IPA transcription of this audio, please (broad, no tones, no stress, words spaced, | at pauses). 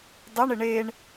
dˤɛɳɪ ɳeɳ